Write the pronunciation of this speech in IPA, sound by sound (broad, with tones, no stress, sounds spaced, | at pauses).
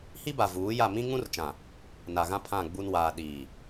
h i˦ b a˨ v uː˨˦ j a˦˨ m ĩ˦ ŋ ũ˦ r t͡ʃ ã˨ | n a˨ ɣ ã˦ pʰ ã˦˨ ɡ͡b u˦ n w aː˨ ɗ iː˨